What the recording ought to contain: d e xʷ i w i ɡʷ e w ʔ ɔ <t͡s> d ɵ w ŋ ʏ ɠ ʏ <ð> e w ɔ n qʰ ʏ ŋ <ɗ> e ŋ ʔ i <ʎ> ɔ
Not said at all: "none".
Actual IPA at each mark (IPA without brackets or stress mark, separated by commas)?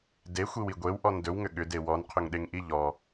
n, d, ɗ, ʎ